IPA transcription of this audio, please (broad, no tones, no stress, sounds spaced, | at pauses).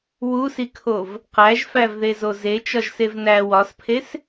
w u s i kʰ o v | q æ ʒ f æ v ð e z o z e t͡ʃ ɒ ʒ s e v n æ w ɒ s pʰ e s